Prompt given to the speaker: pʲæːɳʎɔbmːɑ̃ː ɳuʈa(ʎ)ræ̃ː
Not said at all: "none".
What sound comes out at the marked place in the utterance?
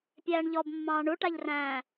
ʎ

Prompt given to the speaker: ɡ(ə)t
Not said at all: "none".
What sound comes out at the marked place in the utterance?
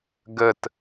ə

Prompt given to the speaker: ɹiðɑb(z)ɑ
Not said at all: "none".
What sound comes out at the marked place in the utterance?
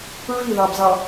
z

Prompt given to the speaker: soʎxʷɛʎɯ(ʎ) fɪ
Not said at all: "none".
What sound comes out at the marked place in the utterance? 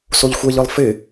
lˠ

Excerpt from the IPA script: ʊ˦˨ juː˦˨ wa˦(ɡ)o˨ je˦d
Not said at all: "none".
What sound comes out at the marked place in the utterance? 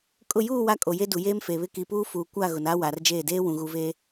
kʼ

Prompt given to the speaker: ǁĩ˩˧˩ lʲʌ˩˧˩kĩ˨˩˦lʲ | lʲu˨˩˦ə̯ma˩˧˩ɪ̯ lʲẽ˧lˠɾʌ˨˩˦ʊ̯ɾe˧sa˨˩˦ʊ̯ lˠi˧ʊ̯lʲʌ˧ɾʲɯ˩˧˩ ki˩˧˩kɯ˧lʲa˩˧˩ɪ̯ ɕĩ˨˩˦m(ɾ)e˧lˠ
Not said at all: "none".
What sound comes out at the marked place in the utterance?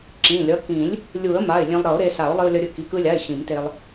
t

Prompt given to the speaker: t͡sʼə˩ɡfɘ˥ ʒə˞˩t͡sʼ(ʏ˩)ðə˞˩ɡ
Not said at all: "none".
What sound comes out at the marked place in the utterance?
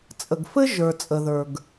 ə˩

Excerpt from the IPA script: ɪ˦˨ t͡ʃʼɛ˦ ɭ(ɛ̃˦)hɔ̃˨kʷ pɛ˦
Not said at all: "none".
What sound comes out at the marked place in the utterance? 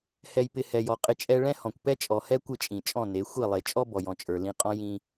ɛ̃˦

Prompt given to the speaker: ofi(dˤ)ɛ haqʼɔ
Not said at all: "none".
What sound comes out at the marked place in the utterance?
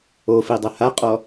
dˤ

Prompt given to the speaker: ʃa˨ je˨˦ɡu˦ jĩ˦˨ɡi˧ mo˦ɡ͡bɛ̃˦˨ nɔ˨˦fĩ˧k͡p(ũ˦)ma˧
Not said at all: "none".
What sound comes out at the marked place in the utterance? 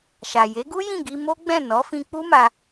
u˦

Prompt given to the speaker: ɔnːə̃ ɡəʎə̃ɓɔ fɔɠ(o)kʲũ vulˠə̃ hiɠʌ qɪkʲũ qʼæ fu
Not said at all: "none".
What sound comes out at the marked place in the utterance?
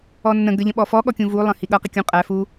ɔ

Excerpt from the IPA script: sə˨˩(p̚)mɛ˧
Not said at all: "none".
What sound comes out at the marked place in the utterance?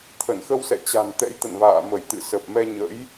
p̚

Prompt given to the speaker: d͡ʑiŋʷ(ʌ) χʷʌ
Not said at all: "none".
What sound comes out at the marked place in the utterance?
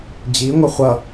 ʌ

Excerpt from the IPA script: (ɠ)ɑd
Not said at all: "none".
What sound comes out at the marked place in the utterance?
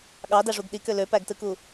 ɠ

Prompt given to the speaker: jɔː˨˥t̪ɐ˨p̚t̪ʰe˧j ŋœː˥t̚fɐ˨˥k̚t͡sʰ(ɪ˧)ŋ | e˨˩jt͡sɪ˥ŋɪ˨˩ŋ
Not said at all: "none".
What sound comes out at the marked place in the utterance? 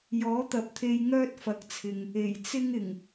ɪ˨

